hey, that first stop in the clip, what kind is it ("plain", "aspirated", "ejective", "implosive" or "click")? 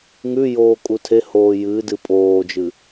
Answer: ejective